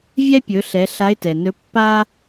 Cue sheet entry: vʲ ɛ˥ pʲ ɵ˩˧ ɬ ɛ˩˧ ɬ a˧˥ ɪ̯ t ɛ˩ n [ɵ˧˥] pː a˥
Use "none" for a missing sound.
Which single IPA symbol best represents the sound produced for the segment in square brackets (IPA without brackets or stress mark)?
ɵ˧˥